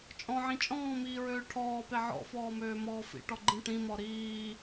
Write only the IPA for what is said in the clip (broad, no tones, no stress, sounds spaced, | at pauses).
t͡ʃʼ ɔ̃ ʕ ĩ t͡ʃʼ ɔ̃ː m iː ɹ øː ʈʰ ɔː p e ʕ ɔ̰ f ɔː m øː m ɔː f ḭ ʈ ɔ ɡ͡ǃ ĩ ʈ ĩ m ɔ ɾ iː